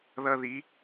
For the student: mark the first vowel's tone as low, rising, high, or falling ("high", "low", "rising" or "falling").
high